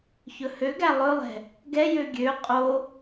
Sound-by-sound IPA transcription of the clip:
ç ɵ h ø ɡ æ lˠ ɵ lˠ ɛ̤ | ɡ ɛ j ø ɡʲ ø qʼ o

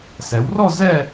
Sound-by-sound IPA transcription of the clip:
s ɛ˩˧ w r ɔ˥˧ z ɛ˥˧

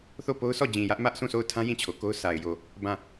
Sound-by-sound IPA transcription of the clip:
θ o˦˨ p o˦ ʊ̯ sʰ ɔ˦˨ d͡ʑ ĩ˨ j ä˦ ʔ m ä˦ ʔ sʰ ũ˦˨ sʰ o˦˨ ʊ̯ tʰ ã˦ j ĩ˦˨ t͡ɕʰ o˨ k o˦ ʊ̯ sʰ a˨ ɪ̯ j o˨ | b ã˦˨

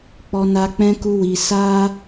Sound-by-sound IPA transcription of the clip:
k͡p ɔ˧ n a˧ k͡p ɛ̃˦ k u˦ w i˧ s a˦

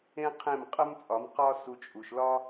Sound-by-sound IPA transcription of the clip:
ẽ˦ qʰ ẽ˦˨ m qʼ ə˦ m t͡sʼ ɒ˨˦ m q ɒ˦ s u˧ t͡ʃʼ u˨ ʃ l ɒ˦

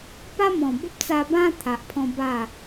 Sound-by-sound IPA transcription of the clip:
p a˦ m ɔ̃˨˩ b ə˦ p̚ t͡s a˧ b ã˦ t̪ʰ a˨ ʔ pʰ ɔ̃˧ b a˥˧

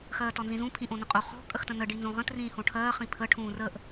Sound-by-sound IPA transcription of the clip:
x ɜː t ɔ n z ĩ z ũ pʰ ĩ ʔ õ n ə̃ qʼ o χ ɔ̤ kʼ ə x t ə̃ n ə ɖ i n z õ ʁ ə̃ t r ĩː h õ ʈʰ ɜː χ ĩ pʰ ə ʈʰ ũː r ə ʔ

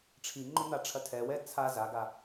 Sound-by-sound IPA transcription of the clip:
ʈ͡ʂʰ i ŋ͡ǃ o n̪ a ʈ͡ʂʰ ɐ tʰ ɛ w ɛ t͡sʰ a z a ɡ a

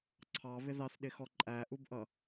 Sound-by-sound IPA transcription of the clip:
ǀʰ ɑ β ɪ ð ɑ θ ɗ ɪ x ɔ ǃʼ æ ʔ u b ʔ ʌ

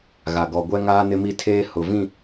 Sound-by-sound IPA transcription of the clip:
ɣ a˨ ɡ ɔ˨ ɡʷ ɛ˦ ŋ aː˦ n ɪ˦ m i˦ tʰ eː˦ h ʊ˨ v ĩ˦˨

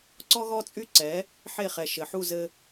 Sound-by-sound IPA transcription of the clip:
ǀ ɔ˥ ɣ ɔ˥ t͡sʼ y˥ ǀ ɛ˩˥ | ħ e˥˩ χ ɛ˩ ʃ ɘ˩ ħ u˥˩ z ɘ˧

